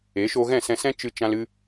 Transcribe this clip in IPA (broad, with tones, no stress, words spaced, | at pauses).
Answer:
e˨˦ʃo˧ɣɛ̃˦˨ sɛ̃˧sɛ̃˦ t͡ʃɨ˧t͡ʃã˧l ɨ˦